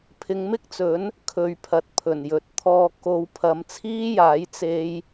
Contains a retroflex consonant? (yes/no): no